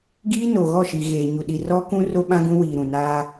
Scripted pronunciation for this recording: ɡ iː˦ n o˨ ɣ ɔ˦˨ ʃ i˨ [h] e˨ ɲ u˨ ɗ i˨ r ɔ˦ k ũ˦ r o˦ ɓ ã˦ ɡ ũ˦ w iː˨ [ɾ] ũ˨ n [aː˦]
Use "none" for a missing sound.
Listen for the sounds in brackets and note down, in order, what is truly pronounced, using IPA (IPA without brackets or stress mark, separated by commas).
ɣ, ɾ, aː˦